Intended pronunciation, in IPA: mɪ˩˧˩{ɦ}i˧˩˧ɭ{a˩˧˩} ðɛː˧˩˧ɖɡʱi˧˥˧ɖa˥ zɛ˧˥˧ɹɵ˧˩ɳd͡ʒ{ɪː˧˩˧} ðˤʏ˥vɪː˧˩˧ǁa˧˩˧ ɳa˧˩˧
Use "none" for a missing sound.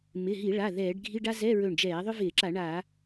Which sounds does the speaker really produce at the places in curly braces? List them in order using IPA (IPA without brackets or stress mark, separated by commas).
ɦ, a˩˧˩, ɛː˧˩˧